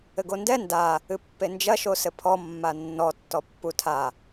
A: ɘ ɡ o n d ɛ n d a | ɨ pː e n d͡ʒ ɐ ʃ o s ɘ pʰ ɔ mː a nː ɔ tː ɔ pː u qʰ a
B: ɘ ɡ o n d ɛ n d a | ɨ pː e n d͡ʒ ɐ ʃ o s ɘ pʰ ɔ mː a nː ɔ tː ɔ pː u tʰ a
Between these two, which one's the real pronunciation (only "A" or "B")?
B